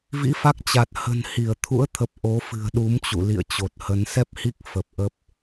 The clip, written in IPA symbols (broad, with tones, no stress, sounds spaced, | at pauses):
v ḭ˧˥ f a˦˥ k̚ t͡ɕ a˨˩ t̚ h ə̤˨˩ n h i˧˩ ə̯ t̪ʰ ṵ˧˥ ə̯ t̪ʰ ə˨˩ p̚ ʔ o˨˦ f ɨ̤˨˩ ə̯ ɗ u˨˦ m t͡ɕ ṵ˧˨ l ḭ˧˨ ə̯ t͡ɕ o˨˩ t̚ h ə˨˦ n s ɛ˦˥ p̚ h i˦˥ k̚ f ə˨˩ p̚ ʔ ə˦˥ p̚